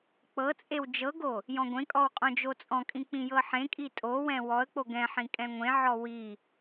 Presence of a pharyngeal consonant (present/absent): present